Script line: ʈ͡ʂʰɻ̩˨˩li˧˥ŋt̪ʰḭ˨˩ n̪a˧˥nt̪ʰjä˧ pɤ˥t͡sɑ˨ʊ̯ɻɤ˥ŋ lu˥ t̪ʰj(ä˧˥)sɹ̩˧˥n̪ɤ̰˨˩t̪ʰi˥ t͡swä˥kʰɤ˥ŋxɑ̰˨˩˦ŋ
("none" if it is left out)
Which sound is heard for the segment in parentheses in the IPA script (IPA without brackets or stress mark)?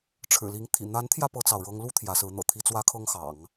ä˧˥